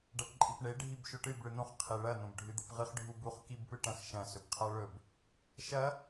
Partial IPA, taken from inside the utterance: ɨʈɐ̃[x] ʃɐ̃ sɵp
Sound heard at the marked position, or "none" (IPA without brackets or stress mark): x